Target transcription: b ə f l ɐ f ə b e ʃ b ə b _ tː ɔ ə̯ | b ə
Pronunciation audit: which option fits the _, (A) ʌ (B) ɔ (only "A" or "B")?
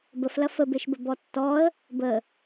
B